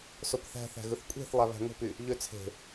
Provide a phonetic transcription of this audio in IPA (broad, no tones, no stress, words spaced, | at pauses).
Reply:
sopθæ̤θæ̤ ɣɯθkʷʼe̤θ lˠæβæ̤ŋo̤py | ʎøt͡sʰe̤